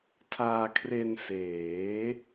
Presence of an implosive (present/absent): absent